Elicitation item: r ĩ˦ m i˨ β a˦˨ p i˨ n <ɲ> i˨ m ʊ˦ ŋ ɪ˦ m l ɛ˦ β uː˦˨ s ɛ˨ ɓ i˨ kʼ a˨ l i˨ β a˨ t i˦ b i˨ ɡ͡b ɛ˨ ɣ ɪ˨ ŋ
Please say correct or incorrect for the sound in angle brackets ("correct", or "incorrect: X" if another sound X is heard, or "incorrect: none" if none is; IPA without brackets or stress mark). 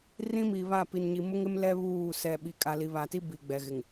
correct